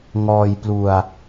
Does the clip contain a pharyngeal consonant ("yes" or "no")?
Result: no